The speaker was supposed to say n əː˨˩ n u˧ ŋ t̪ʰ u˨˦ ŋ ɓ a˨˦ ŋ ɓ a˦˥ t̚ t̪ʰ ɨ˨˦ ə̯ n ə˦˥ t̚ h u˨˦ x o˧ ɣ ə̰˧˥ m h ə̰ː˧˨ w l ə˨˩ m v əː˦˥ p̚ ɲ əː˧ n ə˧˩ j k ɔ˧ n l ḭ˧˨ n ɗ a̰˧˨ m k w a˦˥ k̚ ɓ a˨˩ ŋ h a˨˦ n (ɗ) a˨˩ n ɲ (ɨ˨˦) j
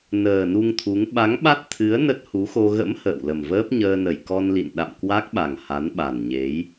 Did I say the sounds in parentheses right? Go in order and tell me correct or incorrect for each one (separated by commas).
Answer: incorrect, incorrect